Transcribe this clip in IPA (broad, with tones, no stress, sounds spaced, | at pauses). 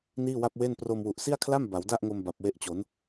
n iː˥˩ w a˥˩ p̚ w e˥˩ n p r o˧ m w u˨˩ ʔ s i˥˩ a̯ kʰ l a˥˩ m b a˩˦ w d a˥˩ ʔ ŋ o˧ m b a˨˩ p̚ w e˦˥ ʔ t͡ɕ o˩˦ n